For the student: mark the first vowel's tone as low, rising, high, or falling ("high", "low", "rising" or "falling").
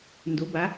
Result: rising